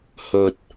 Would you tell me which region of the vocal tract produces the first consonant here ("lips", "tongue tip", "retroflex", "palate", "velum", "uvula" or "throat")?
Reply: throat